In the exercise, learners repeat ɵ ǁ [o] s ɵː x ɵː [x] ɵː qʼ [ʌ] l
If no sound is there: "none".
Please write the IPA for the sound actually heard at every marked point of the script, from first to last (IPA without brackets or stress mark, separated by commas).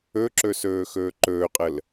ɵ, ǃ, ə